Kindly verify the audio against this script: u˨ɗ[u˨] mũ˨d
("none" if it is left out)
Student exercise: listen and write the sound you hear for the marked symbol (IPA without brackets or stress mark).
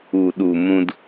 u˨